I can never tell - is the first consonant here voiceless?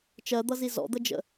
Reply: yes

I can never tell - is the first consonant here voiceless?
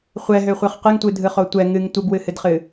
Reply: yes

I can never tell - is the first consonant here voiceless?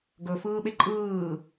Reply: no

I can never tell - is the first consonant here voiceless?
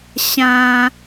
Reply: yes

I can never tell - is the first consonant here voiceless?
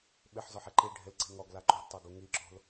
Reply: no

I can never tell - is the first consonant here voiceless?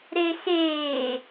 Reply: no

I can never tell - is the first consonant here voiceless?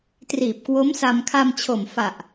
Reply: yes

